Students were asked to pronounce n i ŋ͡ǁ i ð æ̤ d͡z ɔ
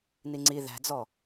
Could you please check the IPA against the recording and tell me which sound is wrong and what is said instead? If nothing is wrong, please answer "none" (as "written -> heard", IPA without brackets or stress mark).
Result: ŋ͡ǁ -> ŋ͡ǀ